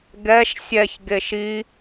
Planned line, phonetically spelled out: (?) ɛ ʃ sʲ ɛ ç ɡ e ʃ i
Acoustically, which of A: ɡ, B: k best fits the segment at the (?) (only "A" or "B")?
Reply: A